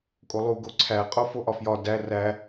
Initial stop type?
ejective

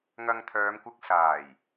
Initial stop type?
aspirated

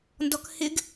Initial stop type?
plain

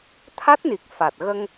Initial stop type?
aspirated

